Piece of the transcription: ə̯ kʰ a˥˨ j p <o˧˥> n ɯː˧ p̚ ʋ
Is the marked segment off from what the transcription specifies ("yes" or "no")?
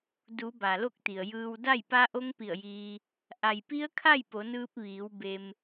yes